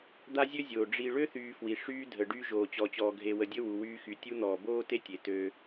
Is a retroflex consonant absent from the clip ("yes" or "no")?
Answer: no